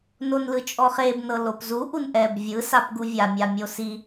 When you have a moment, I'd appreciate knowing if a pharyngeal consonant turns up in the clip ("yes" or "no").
no